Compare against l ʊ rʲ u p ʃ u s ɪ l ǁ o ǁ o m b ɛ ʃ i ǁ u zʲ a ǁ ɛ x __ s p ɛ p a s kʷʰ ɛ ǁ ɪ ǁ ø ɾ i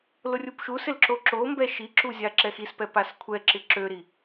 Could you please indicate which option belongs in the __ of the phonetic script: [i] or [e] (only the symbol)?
i